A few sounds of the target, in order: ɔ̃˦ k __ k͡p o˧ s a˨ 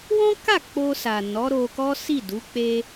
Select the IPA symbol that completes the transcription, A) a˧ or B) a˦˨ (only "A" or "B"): B